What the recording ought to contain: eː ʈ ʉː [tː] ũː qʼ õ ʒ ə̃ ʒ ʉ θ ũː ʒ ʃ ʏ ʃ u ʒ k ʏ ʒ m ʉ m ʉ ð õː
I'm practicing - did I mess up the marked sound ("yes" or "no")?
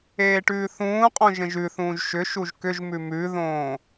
yes